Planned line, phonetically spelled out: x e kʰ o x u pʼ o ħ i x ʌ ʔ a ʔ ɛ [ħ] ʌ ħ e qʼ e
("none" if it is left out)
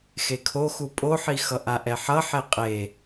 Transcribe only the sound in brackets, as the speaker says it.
ħ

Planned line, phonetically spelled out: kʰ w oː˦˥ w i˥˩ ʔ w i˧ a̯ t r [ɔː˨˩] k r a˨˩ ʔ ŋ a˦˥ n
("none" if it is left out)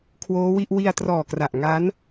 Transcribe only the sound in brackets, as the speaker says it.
ɔː˨˩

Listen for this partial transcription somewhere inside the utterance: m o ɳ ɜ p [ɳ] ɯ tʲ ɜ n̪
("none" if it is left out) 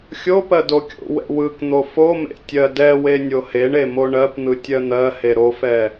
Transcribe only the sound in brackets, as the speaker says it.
n̪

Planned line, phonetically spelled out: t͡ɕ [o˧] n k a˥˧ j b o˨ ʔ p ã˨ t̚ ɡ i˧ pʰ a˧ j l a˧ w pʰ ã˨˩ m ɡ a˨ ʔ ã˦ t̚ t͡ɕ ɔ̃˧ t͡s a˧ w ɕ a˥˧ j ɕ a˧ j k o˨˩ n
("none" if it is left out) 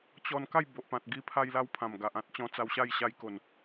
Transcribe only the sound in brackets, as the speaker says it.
ɔ˧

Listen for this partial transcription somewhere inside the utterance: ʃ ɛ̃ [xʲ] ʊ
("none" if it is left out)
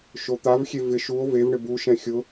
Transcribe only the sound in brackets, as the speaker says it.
xʲ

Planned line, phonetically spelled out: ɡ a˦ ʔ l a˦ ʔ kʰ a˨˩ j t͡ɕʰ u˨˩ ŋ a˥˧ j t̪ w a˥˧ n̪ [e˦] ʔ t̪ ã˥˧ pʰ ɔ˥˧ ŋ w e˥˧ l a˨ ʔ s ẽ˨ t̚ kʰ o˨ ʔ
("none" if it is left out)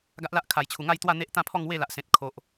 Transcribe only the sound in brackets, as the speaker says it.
e˦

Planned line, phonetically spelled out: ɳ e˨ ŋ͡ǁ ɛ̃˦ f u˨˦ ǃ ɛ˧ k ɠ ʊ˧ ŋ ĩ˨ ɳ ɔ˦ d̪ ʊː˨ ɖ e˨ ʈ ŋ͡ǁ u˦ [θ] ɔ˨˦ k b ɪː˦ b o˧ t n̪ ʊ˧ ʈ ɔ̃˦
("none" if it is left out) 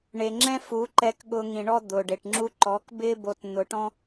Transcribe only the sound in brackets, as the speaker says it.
ǃ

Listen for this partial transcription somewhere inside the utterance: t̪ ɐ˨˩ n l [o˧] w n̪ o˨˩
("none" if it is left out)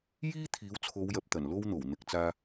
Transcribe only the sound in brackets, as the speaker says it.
o˧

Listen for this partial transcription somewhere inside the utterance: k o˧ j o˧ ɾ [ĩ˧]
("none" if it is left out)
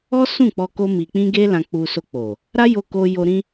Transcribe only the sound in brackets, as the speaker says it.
ĩ˧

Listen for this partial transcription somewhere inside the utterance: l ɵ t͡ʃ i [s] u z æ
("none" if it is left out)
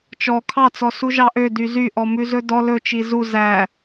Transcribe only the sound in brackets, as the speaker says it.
z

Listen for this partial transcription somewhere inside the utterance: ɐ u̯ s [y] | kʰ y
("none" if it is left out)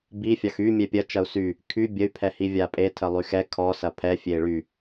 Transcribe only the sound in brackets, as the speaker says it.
y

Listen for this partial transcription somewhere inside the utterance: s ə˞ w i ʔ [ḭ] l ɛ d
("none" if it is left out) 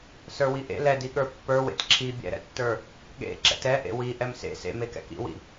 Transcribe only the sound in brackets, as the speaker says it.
ḛ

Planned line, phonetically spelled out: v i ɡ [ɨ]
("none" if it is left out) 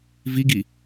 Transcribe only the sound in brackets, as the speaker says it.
i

